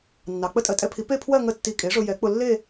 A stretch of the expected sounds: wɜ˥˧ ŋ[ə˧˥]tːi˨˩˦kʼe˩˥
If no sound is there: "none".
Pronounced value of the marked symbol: ə˧˥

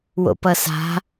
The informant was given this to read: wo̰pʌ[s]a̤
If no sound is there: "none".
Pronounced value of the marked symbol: s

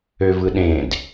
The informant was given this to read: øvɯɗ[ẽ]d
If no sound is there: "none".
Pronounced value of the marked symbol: ẽ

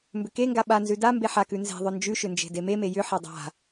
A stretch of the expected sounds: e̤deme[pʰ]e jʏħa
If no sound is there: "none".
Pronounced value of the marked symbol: m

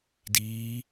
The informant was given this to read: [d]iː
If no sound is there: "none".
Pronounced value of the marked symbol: d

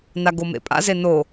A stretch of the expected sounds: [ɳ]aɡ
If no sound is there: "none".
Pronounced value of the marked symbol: n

